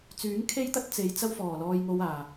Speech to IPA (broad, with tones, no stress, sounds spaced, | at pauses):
t͡s yː˨˥ ŋ kʰ e˥ j t̪ ɐ˥ t̚ t͡s e˨˧ j t͡s ɐ˥ w f ɔː˨˩ l ɔː˧ j ŋ o˧ w aː˨˩